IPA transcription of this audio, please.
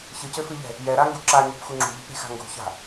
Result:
ç ɨ c ɘ f ɨ ʎ ɛ̤ | j ɛ ɾ a ŋ ɡ u ǁ a ɲ ṳ p x u ŋ͡ǁ ṳ ʎ i̤ p ɾ e̤ x a̤ ŋ ɡ ṳ ç a̤

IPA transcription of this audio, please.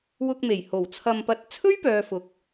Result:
w ʊ˧ k̚ m e˨˩ j h o˨˩ w t͡sʰ ɐ˧ m p ɐ˧ t̚ t͡sʰ ɵ˥ ɥ p œː˨ f ʊ˨ k̚

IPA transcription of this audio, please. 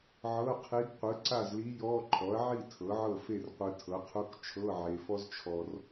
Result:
ʕ ɤ˧˥˧ qʰ i˧˥ ɡ qʷ ɯ˩˥ ǀ a˥˨ z l i˧˥ j ɔ˧˥˧ ǃʰ ɔ˩˥ ɐ̯ ʕ i˥˨ tʰ ɤ˩˥ ʕ ɤ˥˨ f e˥˨ r qʷ ɯ˨ tʰ ɤ˩˥ qʰ u˧˥˧ k t͡ʃʰ ɤ˧˥˧ ʕ e˨ f ɔ˥ z t͡ʃʰ ɔ˨ r

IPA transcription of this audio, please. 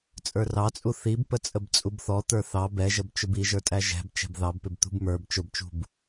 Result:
t͡sʼ ə˞ r ɑ t͡sʼ u θ i b p ə t͡sʼ ə b t͡sʼ u b θ ɔ t̪ ə˞ θ ɑ b ɛ ʒ ə b t͡ʃ ʊ b i ʒ ə˞ tʼ æ ʒ ɛ̤ b t͡ʃ ɛ̤ b ð ɑ b p ɪ b t̪ ṳ b m ə˞ b t͡ʃ ʊ b t͡ʃ ṳ b

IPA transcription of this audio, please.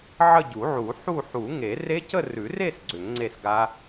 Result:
ʕ ə˥˧ ɟ u˨˩˦ ʕ u˨˩˦ ħ u˥˧ ħ u˨˩˦ ŋ e˨˩˦ r e˦˥ c ə˥˧ r ʉ˨˩˦ r e˥˧ s ɡ͡ǀ ʏ˨˩˦ ŋ ŋ͡ǀ e˥˧ s ɡ a˦˥

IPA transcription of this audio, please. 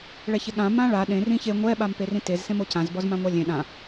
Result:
ɭ ɛ ç e ɠ ã m ã ɭ a ɗ ẽ r ĩ ç e ŋʷ ɛ ɓ a m p e r ĩ t e z s ẽ m o c ã z b ɔ z m ã ŋʷ a lʲ ẽ ɗ ã

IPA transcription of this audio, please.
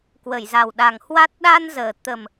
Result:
k w ə˧˩ j z a˨˩ w ɗ a˨˩ ŋ h w a˦˥ t̚ ɗ aː˧ n z əː˨˩ t̪ ə˨˩ m

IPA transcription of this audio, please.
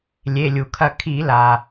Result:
lʲ e˩˧˩ lʲ u˩ kʰ ɐ˦˨ kʰ i˧˩˧ l a˩

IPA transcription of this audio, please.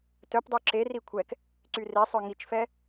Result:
t œ p dˤ ø ǁ e r i kʷʰ ɛ k | ǀ y r e sˤ œ ŋ i t͡ʃ f ɛ

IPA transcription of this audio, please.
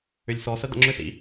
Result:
ʏ lʲ s ɔ s ə d ə̰ ŋ͡ǁ ʏ s ḭ

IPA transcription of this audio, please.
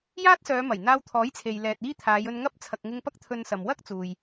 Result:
j aː˥ t̚ s œː˨˧ m ɐ˨˩ j n̪ aː˧ w t̪ʰ ɔː˨˥ j t͡sʰ e˨ j l ɛː˨ t̚ iː˥ t̪ʰ aː˨˧ j ɵ˧ n ŋ ɐ˥ p̚ t͡sʰ ɐ˨ k̚ ŋ ɪ˧ ŋ p ɐ˥ k̚ t̪ʰ ɵ˧ n s ɐ˨ m w ɐ˥ k̚ t͡s uː˨ j

